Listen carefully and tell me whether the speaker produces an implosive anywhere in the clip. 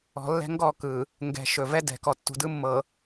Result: no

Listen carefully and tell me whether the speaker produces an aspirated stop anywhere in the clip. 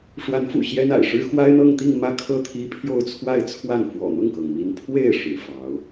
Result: yes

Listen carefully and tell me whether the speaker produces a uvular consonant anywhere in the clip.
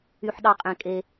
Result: yes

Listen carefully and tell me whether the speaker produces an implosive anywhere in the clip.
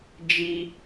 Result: no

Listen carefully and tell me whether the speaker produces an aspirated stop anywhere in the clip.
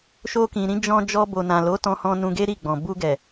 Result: no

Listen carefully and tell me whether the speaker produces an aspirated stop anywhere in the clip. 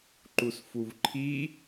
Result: yes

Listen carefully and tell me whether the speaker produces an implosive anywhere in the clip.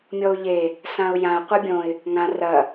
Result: no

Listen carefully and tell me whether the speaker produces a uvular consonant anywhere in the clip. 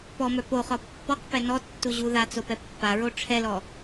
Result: yes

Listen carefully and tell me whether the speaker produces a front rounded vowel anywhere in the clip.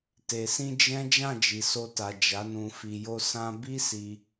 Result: no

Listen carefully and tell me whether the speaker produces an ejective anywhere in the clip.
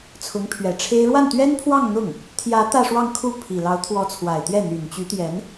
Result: no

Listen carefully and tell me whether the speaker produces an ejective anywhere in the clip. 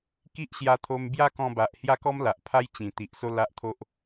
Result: no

